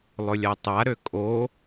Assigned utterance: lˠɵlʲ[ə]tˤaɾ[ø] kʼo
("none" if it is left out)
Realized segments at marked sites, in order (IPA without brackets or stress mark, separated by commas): a, ø